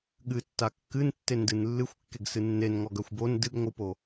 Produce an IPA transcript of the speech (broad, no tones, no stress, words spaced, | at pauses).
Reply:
ɠɨtːa kːɨntːendɨn lːɨxʷkːeɡsɨ nːenŋɔɡœxʷ bon dɨɡŋʷɨpo